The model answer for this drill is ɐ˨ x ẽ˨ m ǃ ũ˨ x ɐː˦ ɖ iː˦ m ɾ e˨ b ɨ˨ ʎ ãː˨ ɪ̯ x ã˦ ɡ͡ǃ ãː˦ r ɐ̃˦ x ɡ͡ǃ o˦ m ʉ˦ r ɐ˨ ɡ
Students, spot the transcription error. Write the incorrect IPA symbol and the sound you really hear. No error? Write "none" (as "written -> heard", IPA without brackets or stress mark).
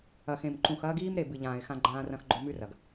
ɖ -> ɡ